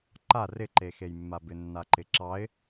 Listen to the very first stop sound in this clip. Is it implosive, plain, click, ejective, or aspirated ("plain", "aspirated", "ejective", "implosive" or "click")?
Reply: click